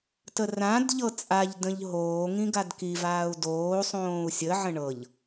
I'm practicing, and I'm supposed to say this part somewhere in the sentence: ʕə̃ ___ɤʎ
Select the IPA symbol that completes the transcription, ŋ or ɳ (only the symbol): ɳ